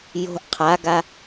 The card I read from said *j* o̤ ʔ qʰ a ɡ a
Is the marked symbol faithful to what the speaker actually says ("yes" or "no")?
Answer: yes